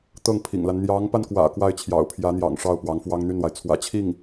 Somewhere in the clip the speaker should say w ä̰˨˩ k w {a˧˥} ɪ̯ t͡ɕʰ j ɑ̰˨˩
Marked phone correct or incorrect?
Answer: incorrect